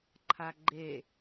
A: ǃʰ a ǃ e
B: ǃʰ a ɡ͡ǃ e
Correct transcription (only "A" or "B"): B